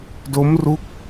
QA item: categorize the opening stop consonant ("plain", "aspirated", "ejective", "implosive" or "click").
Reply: plain